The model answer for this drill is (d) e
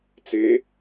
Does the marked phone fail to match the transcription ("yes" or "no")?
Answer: yes